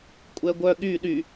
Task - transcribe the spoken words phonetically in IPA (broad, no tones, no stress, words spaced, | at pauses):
kʷʼɛɡʷœ ɠy ɗy